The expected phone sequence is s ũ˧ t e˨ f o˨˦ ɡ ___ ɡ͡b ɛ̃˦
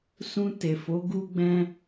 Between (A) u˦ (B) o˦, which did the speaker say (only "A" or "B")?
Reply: A